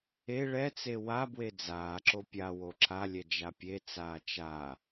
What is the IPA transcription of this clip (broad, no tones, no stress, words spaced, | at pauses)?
e ɭɛt͡se wabwe d͡zaːǁo pʲa woǁalʲɛ d͡ʒapʲet͡saː t͡ʃa